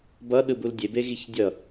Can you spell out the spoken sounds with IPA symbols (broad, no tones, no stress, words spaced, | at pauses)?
bʌ ɗɯbuldʲebe ɣiçdʲʌ